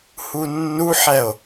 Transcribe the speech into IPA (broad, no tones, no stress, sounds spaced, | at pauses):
h u nː u ħ ɛ o̯